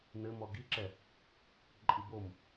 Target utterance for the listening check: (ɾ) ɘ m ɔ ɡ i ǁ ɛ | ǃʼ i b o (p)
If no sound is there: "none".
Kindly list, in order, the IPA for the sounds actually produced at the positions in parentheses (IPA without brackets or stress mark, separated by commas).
n, m